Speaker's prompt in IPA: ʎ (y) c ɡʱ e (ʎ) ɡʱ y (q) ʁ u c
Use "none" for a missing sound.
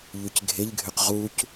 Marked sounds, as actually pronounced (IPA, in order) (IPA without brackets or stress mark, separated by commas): y, ʎ, q